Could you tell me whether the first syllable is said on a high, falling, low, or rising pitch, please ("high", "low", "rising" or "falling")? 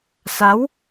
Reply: rising